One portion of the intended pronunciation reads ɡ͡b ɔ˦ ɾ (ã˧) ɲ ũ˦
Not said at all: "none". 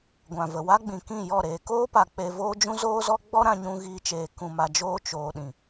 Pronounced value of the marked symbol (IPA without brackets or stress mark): ã˧